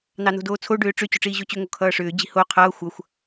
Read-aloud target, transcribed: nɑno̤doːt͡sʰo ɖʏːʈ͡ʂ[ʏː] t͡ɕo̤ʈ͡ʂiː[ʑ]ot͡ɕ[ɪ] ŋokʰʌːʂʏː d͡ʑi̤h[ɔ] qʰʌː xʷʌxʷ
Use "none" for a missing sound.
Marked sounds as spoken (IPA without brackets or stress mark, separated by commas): ʏ, ʑ, ʏ, o